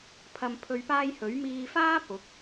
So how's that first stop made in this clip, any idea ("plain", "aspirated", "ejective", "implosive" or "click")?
aspirated